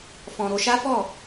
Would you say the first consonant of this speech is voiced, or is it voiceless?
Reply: voiceless